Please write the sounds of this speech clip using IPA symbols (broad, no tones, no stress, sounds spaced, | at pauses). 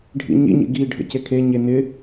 ɖʱ ḭ ɲ ḭ ɲ ḭ ɡ i ɖʱ ə̰ c e kʰ e ɲ e n ɪ